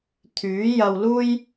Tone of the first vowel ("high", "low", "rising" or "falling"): rising